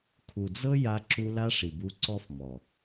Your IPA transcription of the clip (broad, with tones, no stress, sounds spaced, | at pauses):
kʰ u˨ d͡z ɤ˦ j a˧ ǁ u˧ l a˦ ʂ i˨ b u˧ ǀ ɔ˦ f m ɔ˨